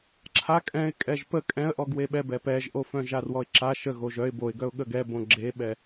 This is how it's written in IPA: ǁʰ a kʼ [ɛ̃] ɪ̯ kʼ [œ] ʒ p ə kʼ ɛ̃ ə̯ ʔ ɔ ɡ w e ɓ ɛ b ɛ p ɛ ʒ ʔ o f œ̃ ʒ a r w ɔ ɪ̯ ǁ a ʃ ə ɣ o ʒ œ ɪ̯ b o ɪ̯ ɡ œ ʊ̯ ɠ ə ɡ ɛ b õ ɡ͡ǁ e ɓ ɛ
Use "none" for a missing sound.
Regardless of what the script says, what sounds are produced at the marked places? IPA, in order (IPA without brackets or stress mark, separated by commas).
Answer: ɛ̃, ɛ